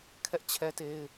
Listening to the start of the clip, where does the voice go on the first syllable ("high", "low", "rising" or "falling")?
high